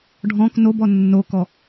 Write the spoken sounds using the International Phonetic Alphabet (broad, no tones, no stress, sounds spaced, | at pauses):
ɖʱ ɔ̃ k n o b ɔ nː o k ɔ